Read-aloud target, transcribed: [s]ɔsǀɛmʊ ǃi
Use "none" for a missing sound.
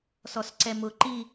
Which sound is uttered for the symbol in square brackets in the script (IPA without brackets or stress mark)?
s